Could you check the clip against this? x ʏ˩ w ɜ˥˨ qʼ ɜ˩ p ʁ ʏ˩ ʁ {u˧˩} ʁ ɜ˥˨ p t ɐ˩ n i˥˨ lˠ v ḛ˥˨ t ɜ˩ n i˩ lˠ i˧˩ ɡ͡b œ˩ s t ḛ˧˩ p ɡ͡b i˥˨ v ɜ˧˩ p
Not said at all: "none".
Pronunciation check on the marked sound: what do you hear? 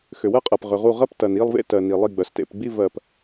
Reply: u˧˩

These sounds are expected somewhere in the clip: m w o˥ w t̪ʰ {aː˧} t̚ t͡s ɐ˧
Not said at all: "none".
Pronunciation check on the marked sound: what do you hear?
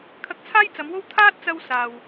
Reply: aː˥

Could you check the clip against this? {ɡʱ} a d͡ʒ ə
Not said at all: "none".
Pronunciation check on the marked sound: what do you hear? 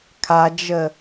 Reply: kʰ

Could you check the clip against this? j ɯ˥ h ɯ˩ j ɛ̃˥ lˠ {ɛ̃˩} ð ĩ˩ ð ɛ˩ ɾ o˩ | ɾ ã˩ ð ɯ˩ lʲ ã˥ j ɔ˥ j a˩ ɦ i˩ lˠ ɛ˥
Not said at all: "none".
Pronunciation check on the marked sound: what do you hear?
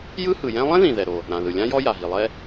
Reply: ɛ̃˥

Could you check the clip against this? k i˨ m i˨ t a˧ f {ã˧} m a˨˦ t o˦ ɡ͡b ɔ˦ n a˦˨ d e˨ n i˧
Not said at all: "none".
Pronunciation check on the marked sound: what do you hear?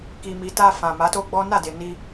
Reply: ã˨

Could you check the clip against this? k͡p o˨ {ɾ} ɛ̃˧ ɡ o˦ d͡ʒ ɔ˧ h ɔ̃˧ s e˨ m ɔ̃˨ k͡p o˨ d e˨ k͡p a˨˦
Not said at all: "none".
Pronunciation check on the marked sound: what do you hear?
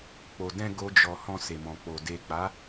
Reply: d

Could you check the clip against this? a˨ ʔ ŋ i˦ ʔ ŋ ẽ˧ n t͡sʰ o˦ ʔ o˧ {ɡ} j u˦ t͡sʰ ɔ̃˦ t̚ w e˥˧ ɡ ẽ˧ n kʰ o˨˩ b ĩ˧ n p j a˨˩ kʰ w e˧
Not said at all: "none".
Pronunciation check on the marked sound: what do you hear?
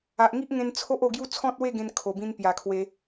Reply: ɡ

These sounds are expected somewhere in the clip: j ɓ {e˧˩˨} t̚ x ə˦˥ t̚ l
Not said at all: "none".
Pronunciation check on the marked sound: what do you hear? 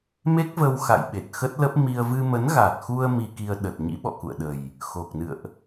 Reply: e˨˩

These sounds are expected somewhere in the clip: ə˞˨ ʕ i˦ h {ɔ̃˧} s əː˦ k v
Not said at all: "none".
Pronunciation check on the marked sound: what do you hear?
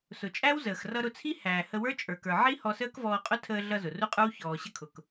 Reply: ɔ˧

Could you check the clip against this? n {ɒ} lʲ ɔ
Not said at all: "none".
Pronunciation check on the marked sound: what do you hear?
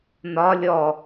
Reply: ɒ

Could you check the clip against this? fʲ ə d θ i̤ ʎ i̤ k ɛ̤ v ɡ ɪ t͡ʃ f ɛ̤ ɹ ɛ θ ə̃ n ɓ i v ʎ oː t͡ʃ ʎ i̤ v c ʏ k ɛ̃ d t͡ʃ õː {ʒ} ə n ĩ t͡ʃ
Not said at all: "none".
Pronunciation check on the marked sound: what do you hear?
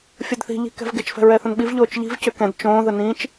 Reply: ð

